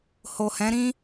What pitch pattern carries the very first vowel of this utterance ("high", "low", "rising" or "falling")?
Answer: low